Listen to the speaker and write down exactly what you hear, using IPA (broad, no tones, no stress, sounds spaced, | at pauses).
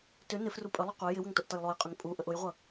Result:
t ʏ n ɪ f r u pʼ ə lˠ ʏ qʷ e j ɪ w ə ŋ t o ʔ t ʌ j lˠ o j qʼ ʏ ŋ pʼ u ʔ ə ʔ ʊ j ʁʷ ʌ